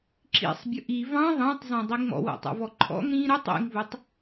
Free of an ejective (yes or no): yes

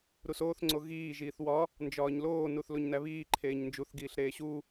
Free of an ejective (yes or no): yes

